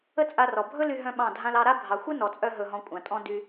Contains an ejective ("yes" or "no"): yes